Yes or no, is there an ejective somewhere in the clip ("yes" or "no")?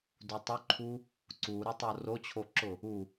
no